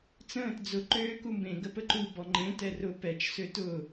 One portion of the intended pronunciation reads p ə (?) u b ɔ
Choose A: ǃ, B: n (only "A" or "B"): A